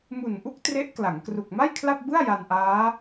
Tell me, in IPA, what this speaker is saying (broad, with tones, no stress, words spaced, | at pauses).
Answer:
mu˨˩nʔu˦˥k̚ tre˦˥ʔkla˩˦ŋ kru˨˩k̚ma˥˩jkʰla˥˩p̚bɯ˥˩a̯ ja˧nʔaː˦˥